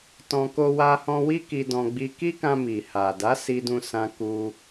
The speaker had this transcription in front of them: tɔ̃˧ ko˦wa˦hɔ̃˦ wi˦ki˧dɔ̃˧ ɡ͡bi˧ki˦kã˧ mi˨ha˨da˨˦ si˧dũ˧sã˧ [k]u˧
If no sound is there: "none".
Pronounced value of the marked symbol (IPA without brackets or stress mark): k